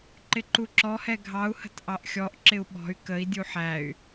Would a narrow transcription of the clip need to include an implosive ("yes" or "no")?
yes